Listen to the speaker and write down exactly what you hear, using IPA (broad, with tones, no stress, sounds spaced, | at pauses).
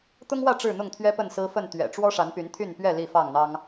t̪ ʊ˦ ŋ w ä˥˨ ʈ͡ʂ ɻ̩˥˨ n̪ ʊ˥˨ ŋ t̪ʰ ɥ ɛ˦ p ə˥˨ n s ɹ̩˦ f ə˥˨ n t̪ ɥ ɛ̰˨˩ ʈ͡ʂ w ɔ˦ ʂ a˨˦ n p y˨˦ n t̪ʰ y˥˨ n p ɥ ɛ˥˨ l i˥˨ f ɑ˥˨ ŋ n̪ ɑ˦ ŋ